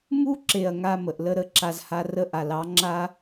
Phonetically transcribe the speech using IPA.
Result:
mu˦ǁe˨ɐ̯ ŋa˧mə˨ʔ lə˧ɾə˦˨ǁa˧zha˧ rə˧ʔa˨lɑ˨˦ ŋ͡ǁa˦

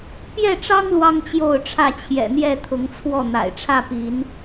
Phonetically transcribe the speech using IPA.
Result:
pjɛ˥˨ʈ͡ʂɑ˦ŋ lwɑ˦ŋt͡ɕjo˥˨ʊ̯ʈ͡ʂʰä˥˨ t͡ɕʰjɛ̰˨˩n̪jɛ˥˨t̪ʰʊ˨˦ŋt͡sʰwɔ˥˨ n̪a̰˨˩ɪ̯ʈ͡ʂʰä˥˨pi˨˦n

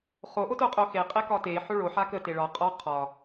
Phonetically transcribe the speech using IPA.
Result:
χo ʔotoqʼoxe qʼekɒte ħoɭo ħakə teɭɒ qʼɒ qʰɒ

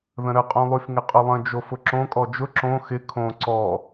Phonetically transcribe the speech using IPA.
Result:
ðə̃ɾəqʼõlˠyf ŋɪqʼʊlˠə̃ d͡ʒofʊǁõ kʼɔd͡ʒʊ ǁõ xɪ kʰõ ǀɔ

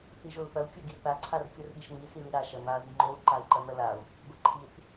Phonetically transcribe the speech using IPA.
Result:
θiʒolθɐu̯ kʲoɡiθa ǀʰarkʲorɠiʃn̪i siliɾa ʃɐn̪a ðiŋ͡ǃou̯ ǃai̯ǃɐn̪ɐlau̯ | ɡʷiǃʰiθ

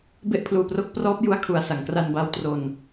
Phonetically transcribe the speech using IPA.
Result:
be˥˩ʔpʰluː˧pro˦˥k̚prɔː˦˥p̚ ju˦˥a̯kʰu˨˩a̯ sa˩˦ŋkra˧nba˧w tro˧n

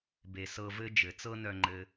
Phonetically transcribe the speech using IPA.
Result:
be˨sɤ˧vɘ˦ d͡ʒɘ˨ t͡sɤ˦nœ˧ŋ͡ǃɘ˧

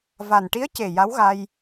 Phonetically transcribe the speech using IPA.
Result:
va˨˩nʈi˧˥ə̯ce˨˩ ja˧˥wɣa˧j

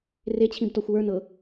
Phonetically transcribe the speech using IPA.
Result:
ret͡ɕʰĩbtɔxʷ wə˞nɤ

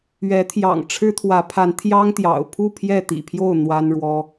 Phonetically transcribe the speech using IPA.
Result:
ɥɛ˨˦t̪ʰjɑ̰˨˩ŋ ʈ͡ʂʰɻ̩˦t̪ʰwä˨˦pʰa˨˦n t̪ʰjɑ˦ŋt̪jɑ̰˨˩ʊ̯pʰu˥˨ pʰjɛ˥˨t̪ḭ˨˩pʰjo˥˨ʊ̯ n̪wa˦nɻwɔ˦

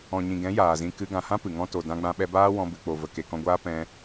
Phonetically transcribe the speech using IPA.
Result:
ɔ̃˨ɲĩ˨ɡɛ̃˨˦ jaː˨zĩ˧ kɨ˧ ɡã˨hã˦ pɨ˨ŋɔ̃˦ to˨ dã˧ɡ͡bã˧ɓɛ˧baː˦ wɔ̃˧bɨ˨k͡po˨və˨ ke˨kɔ̃˧ɡʷaː˦ pɛ̃˧

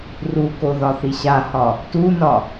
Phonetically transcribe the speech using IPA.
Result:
rukoðɒθi ɕahɒ | tunɒ

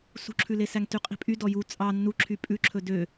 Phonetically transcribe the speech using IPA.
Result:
sṳǁʰʉlesæŋ tyqʼi̤pʼy dɔju t͡sʼɑ nːuǁʰy pʼʉǁʰɵ dø

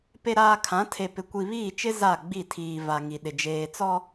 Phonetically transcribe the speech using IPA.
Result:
pe˨ɾaː˨ kʰã˨˦tʰe˨pɪ˨ kʷi˨βiː˦˨ t͡ʃɪ˦ za˦˨ɡ͡bi˦˨tʰiː˨ va˨ ŋi˨ɗɪ˨ d͡ʒeː˨t͡sɔ˦

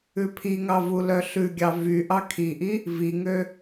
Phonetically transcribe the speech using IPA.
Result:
ʉpʰiŋɑ vulœɬʉɡʲɑ vy ʔɑkʰiʔi | viŋø

